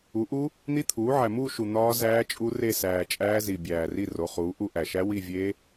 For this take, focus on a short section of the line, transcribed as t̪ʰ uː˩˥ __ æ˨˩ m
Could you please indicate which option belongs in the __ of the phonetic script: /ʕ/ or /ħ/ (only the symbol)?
ʕ